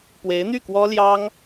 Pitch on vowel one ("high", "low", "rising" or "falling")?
rising